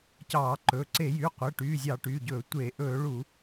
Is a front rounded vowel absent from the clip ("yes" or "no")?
no